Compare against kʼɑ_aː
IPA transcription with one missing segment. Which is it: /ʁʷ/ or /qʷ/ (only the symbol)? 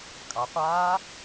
qʷ